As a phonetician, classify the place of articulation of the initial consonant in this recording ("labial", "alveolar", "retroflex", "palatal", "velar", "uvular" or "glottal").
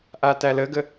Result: glottal